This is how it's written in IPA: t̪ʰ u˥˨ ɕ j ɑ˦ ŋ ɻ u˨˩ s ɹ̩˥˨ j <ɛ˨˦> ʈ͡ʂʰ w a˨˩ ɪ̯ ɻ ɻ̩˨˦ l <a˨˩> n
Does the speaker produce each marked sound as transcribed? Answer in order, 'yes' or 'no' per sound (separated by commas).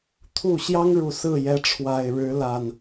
yes, yes